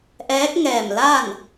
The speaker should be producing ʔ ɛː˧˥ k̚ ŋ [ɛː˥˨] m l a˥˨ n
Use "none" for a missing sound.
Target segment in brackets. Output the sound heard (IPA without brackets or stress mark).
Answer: ɛː˧˩